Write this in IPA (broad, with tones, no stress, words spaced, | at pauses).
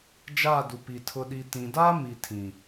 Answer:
d͡ʒaː˦˨du˨pi˨ tʰʊ˨ɗi˨tĩ˨daː˦ mi˨tʰĩ˨